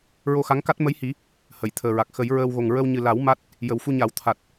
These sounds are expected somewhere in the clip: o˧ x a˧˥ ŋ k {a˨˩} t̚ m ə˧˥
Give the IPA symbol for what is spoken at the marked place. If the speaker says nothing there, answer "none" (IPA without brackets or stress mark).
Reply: a˦˥